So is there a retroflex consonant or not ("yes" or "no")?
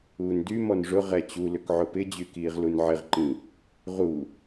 yes